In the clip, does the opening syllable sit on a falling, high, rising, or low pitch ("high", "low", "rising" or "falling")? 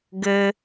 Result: high